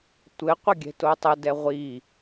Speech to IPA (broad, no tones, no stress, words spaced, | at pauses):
tʷɘ qʷɘɡʲɛ̤totˤə dɛʁʷi